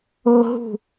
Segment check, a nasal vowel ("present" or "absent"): absent